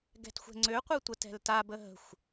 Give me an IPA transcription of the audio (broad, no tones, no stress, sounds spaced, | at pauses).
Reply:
ɡ ɛ̤ t xʷ ɛ̤ ŋ͡ǀ ø qʷ ɛ tʷ ə t ɛ̤ l t a b ə ɦ ə̤ xʷ